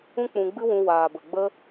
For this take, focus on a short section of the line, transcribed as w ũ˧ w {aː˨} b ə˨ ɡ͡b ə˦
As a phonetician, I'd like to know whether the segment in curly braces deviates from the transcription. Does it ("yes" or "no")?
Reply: no